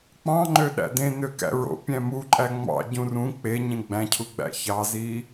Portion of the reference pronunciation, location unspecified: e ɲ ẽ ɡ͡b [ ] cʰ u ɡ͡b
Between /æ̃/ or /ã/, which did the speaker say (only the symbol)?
æ̃